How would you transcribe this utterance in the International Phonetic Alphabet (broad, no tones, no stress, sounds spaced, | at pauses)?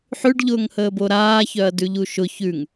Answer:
ħ ʉ ɖ ʎ ʊː ŋ h əː b o ɾ aː ç œ ɐ̯ d ʉ ʎ u ʃ ʊ ç ʉ ŋ